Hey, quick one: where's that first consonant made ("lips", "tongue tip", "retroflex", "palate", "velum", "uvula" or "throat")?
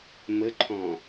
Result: lips